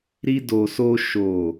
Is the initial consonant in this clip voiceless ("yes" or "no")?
no